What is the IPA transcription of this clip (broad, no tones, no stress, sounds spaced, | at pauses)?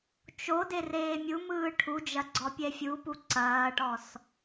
t͡ʃ o d e r eː mʲ u m ɯː ʈʰ u d͡ʒ ɐ ɡ͡ǀ ɔ pʲ ɛ fʲ u p u ǀ ɐː ʈ ɔ s